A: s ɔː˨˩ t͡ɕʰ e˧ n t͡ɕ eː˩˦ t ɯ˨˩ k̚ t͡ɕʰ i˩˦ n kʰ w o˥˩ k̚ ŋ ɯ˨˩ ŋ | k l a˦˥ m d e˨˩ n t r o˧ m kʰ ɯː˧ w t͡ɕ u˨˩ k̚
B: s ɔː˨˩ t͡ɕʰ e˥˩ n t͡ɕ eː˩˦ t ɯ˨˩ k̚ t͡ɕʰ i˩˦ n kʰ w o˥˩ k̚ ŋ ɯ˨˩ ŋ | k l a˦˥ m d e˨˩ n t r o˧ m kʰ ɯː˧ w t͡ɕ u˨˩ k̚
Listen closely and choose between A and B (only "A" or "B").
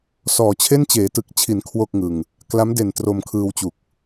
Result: B